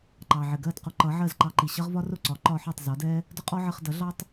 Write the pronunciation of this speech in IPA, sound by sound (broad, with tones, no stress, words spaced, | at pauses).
ǃɑ˩ʕɪ˩ɡɜ˥˩d qʊ˧ǃʌ˩˥ʕɜ˥˩z ǃɑ˧ǃi˩ɕʌ˥ʁvɒ˥ rʊ˥˩ǀɒ˩˥ǃɒ˧ ħɔ˥˩tˤzɒ˩˥dɛ˥ | dʊ˥qʼɔ˥ʕə˧χ dʌ˩˥ɮɑ˥tˤ